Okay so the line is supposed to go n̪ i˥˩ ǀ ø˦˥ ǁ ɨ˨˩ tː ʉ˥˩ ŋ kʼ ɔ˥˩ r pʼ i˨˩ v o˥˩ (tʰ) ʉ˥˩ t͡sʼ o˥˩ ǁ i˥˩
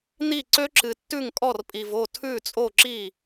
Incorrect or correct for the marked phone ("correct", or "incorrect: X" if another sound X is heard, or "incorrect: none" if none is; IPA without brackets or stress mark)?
correct